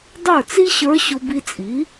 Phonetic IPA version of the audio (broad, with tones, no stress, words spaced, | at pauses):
dˤə˞˥˩t͡si˥ɕə˞˧˥ ɕʊ˧ bi˧t͡sʼi˩˥